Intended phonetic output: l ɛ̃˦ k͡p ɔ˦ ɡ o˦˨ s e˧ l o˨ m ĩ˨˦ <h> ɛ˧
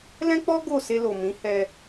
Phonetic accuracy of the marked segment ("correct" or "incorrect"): correct